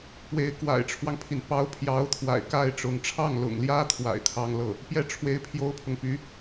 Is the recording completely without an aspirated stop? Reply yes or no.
no